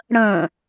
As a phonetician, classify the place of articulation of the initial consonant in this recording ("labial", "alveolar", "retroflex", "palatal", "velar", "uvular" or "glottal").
retroflex